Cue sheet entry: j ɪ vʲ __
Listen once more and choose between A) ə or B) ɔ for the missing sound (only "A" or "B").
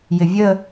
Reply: A